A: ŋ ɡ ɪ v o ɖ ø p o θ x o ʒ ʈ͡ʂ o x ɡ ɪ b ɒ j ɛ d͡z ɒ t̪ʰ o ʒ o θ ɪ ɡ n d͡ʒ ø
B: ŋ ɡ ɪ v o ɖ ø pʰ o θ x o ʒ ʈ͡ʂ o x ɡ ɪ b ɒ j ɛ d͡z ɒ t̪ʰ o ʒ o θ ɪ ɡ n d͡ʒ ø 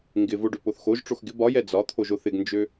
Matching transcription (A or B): A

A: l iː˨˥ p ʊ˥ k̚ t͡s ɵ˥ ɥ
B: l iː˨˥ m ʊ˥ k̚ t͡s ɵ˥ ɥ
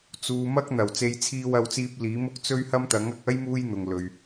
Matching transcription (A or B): B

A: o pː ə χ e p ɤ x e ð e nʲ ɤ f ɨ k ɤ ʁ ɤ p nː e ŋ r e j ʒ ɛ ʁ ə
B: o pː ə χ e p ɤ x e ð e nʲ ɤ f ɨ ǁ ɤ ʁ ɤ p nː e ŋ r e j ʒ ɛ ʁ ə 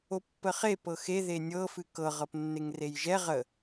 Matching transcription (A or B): A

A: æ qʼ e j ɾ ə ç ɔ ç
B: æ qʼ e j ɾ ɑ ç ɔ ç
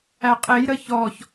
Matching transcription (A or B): A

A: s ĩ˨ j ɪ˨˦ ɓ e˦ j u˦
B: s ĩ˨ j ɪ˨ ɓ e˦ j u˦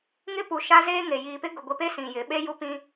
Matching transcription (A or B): A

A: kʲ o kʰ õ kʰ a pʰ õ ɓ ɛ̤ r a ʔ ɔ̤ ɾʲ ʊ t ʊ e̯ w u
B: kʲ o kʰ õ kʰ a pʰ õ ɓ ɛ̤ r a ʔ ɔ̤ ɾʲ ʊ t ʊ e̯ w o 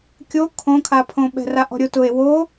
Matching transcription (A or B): B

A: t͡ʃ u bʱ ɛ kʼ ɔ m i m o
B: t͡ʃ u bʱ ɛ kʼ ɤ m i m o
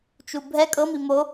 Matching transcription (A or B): B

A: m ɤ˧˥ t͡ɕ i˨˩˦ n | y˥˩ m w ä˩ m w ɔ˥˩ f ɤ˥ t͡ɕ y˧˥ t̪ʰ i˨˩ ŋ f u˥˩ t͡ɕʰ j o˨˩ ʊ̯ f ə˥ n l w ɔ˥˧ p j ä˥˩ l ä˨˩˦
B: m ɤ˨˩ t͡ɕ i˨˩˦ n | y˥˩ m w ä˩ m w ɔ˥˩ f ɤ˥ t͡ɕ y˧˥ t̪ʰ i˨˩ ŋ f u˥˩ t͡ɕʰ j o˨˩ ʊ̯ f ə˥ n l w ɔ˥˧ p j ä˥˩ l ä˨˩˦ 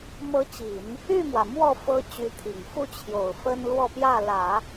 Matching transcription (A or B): A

